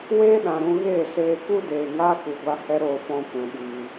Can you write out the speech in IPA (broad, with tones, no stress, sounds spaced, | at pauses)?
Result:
w eː˦ ɗ ã˨ ɾ ũ˧ ɣ eː˦˨ s eː˧ k u˦ d eː˨ ŋ aː˦ k u˨ ɡʷ a˧ h ɛ˦ ɾ oː˧ f ɔ̃˧ kʷ ɛ̃˨ ɓ iː˨